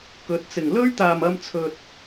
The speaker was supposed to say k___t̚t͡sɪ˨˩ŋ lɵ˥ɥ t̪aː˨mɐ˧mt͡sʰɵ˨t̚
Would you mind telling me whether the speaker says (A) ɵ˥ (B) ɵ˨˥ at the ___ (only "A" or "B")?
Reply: B